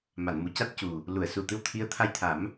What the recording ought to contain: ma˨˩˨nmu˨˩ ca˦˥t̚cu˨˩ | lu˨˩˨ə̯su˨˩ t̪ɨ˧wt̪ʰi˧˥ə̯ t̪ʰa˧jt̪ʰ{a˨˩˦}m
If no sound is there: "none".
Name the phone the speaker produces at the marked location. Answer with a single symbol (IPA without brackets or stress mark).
a˨˩˦